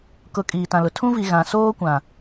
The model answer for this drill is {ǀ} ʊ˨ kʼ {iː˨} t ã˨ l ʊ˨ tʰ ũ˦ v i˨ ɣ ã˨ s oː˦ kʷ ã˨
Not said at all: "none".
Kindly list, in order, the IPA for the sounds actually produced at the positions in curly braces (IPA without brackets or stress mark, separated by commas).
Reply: k, iː˨